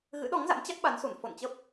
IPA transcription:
ɣ ɨ̰˧˥ ɗ ɔ˨˦ ŋ z a̰˧˥ m t͡ɕ a˦˥ k̚ ɓ a˨˦ n s u˧˩ n f o̰˧˨ n t͡ɕ ə˦˥ p̚

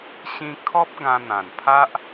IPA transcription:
ɕ ĩ˧ kʰ ɔ˦ p̚ ɡ ã˧ n̪ ã˨˩ n pʰ a˦ ʔ

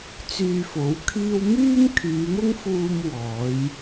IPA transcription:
t͡s yː˧ f o˨˥ w kʰ iː˥ w m yː˥ m kʰ yː˨˧ m ʊ˥ ŋ f uː˧ m w ɔː˨˥ j

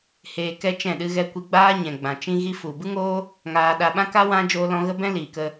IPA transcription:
h eː˧ k ɛ˦ t͡ʃ ɛ̃˦˨ ɗ ɨ˦ ɣ ɛ˧ kʷ i˧ ɡ͡b aː˦ ɲ ɛ̃˨ ɡ͡b ã˨ t͡ʃ ĩ˧ ɣ i˧ f u˨ b ɨ˦ ŋ oː˦ | ŋ aː˧ ɗ a˧ ɓ ã˦ k a˦ w ã˧ d͡ʒ oː˦ l ɔ̃˦ ɣ ə˦ b ɛ̃˦ l iː˨ k ə˧

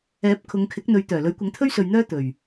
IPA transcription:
ɛː˨˥ p̚ kʰ ʊ˨˧ ŋ kʰ ɪ˨˥ k̚ n̪ ɵ˨˧ ɥ t̪ œː˨˩ l ɵ˨˥ ɥ kʷ ɐ˨˥ ŋ t̪ʰ ɵ˥ ɥ s ɵ˨ ɥ n̪ œː˥ t̪ ɵ˨˩ ɥ

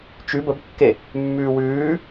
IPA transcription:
t͡ʃ ʉ b ə b kː e | mː ʉː w ʉː

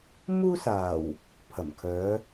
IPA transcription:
m uː˥ s aː˨˩ w | pʰ ɐ˨˩ m kʰ œː˨˧

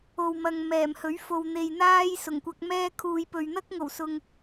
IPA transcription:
o˨ w m ɐ˨ ŋ m ɛː˨˩ m h ɵ˨˥ ɥ f o˨ w n̪ e˨ j n̪ aː˥ j s ʊ˨˩ ŋ kʷ ɐ˧ k̚ m ɛː˥ kʰ uː˨ j p ɵ˨ ɥ n̪ ɐ˥ k̚ ŋ o˨˩ w s ʊ˨ ŋ

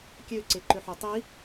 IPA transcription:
kʲ ø ǀ e ǃ ø ħ o tˤ i

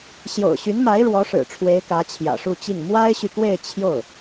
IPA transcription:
ɕ j o̰˨˩ ʊ̯ ɕ y˧˥ n m a˧˥ ɪ̯ ɻ w ɔ˧˥ ʂ ɻ̩˨˩ ʈ͡ʂʰ w e˧˥ ɪ̯ k ä˧˥ t͡ɕʰ j ä̰˨˩ ʂ u˥˧ t͡ɕ i˥˩ ŋ m w a˥ ɪ̯ ɕ y˨ k w e˥˧ ɪ̯ t͡ɕʰ j o˥˩ ʊ̯

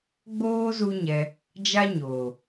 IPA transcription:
ɡ͡b oː˦ z u˦ ɲ ɛ˧ | d͡ʒ a˦ ɲ oː˨

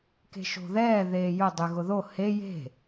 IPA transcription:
k e̤ ʃ o̤ ð ɛː ð eː j ʊ dˤ y ɣ ʊ ð o h e j e̤

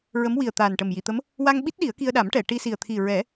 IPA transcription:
ɹ ə˧˥ m w i˨˩ ə̯ t̪ aː˨˩ n ʈ ə˨˩ m j i˨˩˨ t̪ ə˧˥ m | w a˧ ŋ ɓ i˦˥ t̚ ɗ i˨˩˦ ə̯ k i˧ ə̯ ɗ a˨˩˦ m ʈ ɛ˨˩˨ ʈ i˧ s i˨˩ ə̯ t̪ʰ i˨˩ ɹ ɛ˨˩˦

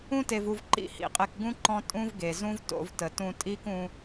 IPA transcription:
ũ˦ t e˧ v u˧ v ǃ ḭ˦˨ h ḭ˦˨ qʼ e˧ k ɡ ũ˦ ǃ ɔ̃˦ tʼ ũ˦ v ɡ e˨ z ũ˦ v t o̰˧ v t ə˨ t ũ˧ tʼ i˦ k ũ˧

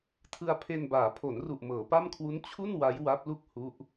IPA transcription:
tʰ ɯ˧ a̯ pʰ e˧ n b aː˩˦ pʰ o˩˦ n r u˨˩ ʔ m ɤː˩˦ p a˥˩ m kʰ w u˦˥ n t͡ɕʰ u˥˩ n w a˦˥ j w a˦˥ p̚ l u˥˩ k̚ h u˦˥ ʔ

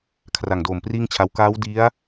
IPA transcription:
kʰ r a˨˩ ŋ d oː˨˩ m p r iː˥˩ ŋ t͡ɕʰ a˧ w k aː˦˥ w d i˦˥ a̯

